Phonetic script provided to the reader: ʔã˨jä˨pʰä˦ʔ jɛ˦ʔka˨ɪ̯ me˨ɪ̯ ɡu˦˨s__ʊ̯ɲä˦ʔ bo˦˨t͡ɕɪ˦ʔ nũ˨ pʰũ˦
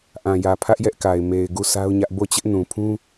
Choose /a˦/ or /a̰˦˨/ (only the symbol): a˦